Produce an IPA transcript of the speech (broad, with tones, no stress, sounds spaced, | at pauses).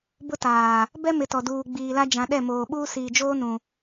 b ʊ˦ t aː˨ | b ɛ˦ m ɪ˨ t ɔ˨ d uː˨ ɡ͡b iː˨ l a˦ d͡ʒ ã˨ ɗ ɛ˦˨ m oː˨ ɓ uː˦ s iː˨ d͡ʒ oː˦ n ũ˨